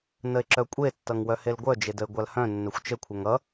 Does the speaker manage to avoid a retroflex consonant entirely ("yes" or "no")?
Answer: yes